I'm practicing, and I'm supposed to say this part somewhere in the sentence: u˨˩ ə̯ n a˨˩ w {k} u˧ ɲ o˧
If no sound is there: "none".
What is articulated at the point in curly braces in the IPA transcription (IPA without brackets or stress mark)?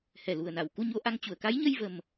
k